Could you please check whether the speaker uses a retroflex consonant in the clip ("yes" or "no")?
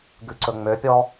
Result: no